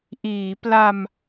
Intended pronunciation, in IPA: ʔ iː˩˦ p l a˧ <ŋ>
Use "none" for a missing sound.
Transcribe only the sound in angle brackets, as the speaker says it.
m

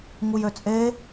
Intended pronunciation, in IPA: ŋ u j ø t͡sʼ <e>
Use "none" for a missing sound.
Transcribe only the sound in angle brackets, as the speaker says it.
e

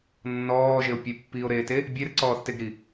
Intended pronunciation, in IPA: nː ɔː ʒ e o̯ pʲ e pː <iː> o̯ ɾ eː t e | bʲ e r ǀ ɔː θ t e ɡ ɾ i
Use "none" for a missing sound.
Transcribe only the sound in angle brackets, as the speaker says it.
iː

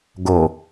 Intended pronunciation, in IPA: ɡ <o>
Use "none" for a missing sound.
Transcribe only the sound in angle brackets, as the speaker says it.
o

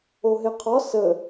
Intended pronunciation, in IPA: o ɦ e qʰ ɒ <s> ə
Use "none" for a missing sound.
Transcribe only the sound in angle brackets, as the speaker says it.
s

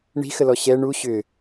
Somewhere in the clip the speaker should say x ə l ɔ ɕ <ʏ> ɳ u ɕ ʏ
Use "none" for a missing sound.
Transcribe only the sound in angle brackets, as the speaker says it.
ɛ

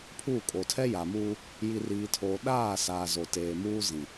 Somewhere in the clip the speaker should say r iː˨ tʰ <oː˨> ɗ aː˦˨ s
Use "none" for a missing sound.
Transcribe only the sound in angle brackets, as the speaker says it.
oː˨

